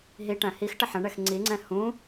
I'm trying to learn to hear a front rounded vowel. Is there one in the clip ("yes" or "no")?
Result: no